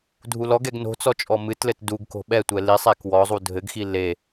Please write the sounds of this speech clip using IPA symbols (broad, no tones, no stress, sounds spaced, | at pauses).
dʱ u l ɔ ɡ ɛ ɡ n o̤ t͡s ɔ t͡ʃʼ ɔ m ɨ t l ɘ t d u ɡ k o̤ ɓ ɛ tʷ ɛ l i sˤ ɛ k w ɔ zˤ u dʱ ɘ ɡ x i l e